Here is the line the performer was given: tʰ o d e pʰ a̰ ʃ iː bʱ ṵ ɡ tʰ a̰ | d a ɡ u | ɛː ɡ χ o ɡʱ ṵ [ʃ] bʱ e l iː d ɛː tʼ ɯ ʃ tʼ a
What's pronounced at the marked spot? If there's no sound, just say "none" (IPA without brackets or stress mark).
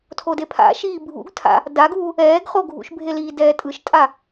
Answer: ʃ